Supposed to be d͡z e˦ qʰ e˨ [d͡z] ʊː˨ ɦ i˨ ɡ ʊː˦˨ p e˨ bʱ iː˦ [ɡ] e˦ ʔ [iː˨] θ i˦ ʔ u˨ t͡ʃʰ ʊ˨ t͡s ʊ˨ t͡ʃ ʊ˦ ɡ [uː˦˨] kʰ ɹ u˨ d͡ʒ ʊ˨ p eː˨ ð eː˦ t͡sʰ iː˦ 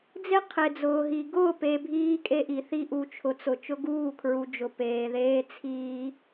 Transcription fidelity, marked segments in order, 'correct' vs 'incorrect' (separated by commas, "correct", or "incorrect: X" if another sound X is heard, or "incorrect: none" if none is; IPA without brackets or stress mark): correct, incorrect: kʼ, incorrect: i˨, correct